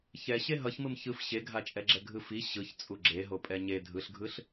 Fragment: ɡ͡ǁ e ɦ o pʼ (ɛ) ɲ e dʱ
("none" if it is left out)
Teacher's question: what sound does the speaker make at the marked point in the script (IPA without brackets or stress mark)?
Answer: ɛ